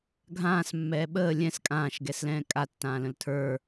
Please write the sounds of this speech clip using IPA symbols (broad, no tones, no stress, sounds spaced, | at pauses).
ɡʱ ãː s mː ɛː ɓ əː lʲ ɛ̃ s kʼ ãː ʃ ɡ ɛ s l ɛ̃ː kʼ a tː ãː l ə̃ l tʰ ə˞